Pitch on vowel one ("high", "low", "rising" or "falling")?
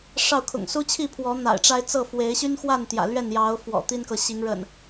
falling